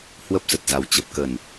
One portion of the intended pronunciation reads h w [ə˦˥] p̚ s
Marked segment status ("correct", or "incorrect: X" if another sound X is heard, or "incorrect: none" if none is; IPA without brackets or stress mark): correct